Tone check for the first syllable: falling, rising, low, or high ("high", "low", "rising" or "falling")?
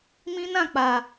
high